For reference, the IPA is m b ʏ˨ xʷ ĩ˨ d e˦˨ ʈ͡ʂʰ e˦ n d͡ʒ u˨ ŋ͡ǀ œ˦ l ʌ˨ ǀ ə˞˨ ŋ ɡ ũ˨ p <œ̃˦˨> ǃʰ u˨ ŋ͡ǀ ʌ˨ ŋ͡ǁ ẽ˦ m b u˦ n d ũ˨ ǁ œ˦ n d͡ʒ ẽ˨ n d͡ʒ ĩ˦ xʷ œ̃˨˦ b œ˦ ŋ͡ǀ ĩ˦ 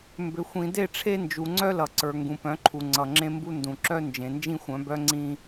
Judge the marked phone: incorrect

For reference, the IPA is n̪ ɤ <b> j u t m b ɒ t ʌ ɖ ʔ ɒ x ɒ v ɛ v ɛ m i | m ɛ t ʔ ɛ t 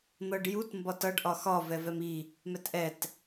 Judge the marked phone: incorrect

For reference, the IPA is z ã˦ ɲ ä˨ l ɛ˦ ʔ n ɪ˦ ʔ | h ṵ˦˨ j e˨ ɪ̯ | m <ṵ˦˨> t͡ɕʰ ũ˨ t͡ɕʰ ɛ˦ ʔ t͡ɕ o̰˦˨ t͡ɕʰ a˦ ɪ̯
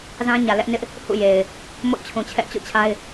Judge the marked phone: incorrect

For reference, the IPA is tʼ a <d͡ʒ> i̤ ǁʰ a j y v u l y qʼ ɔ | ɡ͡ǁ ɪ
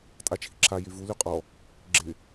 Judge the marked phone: incorrect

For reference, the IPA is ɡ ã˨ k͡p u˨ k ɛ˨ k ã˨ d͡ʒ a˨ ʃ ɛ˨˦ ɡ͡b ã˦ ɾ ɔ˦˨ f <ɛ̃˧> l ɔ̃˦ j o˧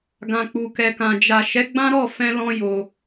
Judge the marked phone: correct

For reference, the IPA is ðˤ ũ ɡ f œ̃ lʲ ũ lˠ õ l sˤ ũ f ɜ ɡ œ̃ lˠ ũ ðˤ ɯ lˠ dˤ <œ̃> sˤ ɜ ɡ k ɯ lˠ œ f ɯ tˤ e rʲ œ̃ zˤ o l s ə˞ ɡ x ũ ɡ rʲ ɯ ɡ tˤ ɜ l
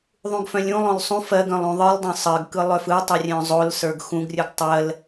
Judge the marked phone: correct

